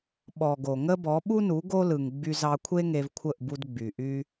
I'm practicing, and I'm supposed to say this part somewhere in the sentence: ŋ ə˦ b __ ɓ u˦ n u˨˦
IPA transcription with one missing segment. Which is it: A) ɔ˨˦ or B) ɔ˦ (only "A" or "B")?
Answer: A